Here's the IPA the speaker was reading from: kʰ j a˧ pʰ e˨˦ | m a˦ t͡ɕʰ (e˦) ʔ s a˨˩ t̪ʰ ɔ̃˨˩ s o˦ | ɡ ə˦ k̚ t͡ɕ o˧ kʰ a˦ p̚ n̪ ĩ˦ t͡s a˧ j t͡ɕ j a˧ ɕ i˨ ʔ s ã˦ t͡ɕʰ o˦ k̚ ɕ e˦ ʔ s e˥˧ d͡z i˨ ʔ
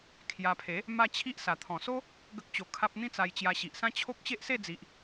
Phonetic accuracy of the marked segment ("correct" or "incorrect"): incorrect